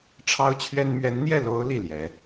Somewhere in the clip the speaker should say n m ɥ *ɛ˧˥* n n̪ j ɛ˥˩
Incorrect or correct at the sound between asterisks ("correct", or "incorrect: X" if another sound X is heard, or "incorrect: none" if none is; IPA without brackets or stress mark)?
correct